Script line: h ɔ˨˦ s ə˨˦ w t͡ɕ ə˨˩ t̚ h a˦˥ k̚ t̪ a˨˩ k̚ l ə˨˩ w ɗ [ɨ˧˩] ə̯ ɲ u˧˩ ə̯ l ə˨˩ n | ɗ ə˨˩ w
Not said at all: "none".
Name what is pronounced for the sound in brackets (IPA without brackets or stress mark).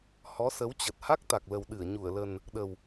ɨ˧˩